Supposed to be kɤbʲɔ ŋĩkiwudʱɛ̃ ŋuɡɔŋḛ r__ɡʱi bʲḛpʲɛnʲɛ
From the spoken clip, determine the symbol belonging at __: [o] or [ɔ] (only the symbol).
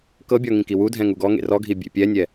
ɔ